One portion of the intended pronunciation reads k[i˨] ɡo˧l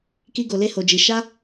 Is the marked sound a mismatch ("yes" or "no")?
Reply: yes